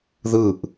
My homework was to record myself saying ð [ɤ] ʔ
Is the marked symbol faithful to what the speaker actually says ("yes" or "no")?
no